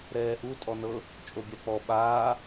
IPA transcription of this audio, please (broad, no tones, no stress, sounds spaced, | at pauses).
ɾ ɛː ʔ u tʼ ɔ n ɤ | t͡ʃʼ o ɡʲ a k͡p ɔ ɓ aː